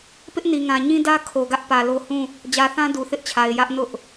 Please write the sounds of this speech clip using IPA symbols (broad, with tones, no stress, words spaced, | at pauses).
pɪ˦ʔni˨ŋã˨ ɲĩ˦dä˦ kʰo˨ɡä˦ʔ pä˨lo˦ hũ˦˨ | d͡ʑä˨θã˦ du˨θɪ˦ʔt͡ɕʰa˨ɪ̯ jä˦ʔnʊ˦ʔ